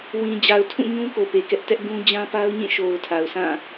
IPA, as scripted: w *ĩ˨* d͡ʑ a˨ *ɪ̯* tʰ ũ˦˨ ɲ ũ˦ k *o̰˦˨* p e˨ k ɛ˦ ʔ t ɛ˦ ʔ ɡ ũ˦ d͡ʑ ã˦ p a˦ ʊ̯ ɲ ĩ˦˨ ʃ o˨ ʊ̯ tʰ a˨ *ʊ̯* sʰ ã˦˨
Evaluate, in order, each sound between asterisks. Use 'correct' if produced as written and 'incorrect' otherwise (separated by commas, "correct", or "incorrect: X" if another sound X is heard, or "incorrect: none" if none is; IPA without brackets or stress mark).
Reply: correct, incorrect: ʊ̯, incorrect: o˨, correct